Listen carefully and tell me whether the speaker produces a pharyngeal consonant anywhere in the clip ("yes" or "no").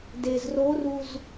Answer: no